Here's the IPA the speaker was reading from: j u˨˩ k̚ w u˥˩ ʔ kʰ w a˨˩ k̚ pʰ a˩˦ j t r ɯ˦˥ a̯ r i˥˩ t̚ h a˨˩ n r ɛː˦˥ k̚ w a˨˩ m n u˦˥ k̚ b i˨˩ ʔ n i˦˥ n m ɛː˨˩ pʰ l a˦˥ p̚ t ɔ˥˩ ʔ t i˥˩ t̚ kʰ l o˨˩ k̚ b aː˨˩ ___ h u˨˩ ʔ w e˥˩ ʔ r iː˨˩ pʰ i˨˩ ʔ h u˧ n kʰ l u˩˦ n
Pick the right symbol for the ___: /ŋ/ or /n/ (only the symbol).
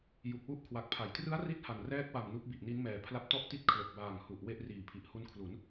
ŋ